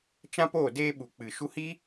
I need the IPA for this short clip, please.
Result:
t͡ʃ ã˦ p oː˦˨ d eː˦ ɓ u˨ k͡p ɨ˨ ʃ u˧ h iː˦

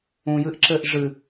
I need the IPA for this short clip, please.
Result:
ũ j ɨ ʔ ǁ ɘ ʔ ʐ ɨ

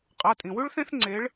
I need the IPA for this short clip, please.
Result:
qʼ a˩˧˩ tʼ ĩ˩ w ʉ˥ ɭ θ ẽ˥ θ ŋ͡ǀ e˨˦ ɭ

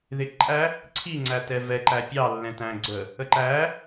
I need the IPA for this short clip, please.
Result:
ð ɪ ǃʼ æ | ǀʰ i ŋ͡ǀ æ t ɛ v ɛ ǃ æ pʲ ɑ lː ɛ̃ t æ̃ ɡ͡ǀ ə | ə ǃ æ

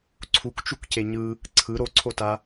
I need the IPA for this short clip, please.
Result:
ǀʰ u k t͡ʃ u k c e ɲ ɯ | ǀʰ ɯ ɾ o ǀʰ o t a

